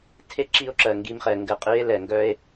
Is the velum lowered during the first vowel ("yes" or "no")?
no